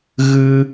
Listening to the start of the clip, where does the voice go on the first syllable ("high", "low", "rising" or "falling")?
high